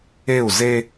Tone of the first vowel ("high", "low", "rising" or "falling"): falling